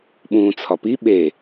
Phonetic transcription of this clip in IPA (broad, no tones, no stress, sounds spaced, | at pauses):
ɓ ũ t͡sʰ ɒ p i ɓ e